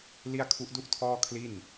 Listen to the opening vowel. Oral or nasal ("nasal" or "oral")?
oral